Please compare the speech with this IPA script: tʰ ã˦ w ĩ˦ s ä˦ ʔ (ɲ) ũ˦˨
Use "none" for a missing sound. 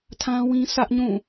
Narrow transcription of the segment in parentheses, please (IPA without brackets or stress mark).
ɲ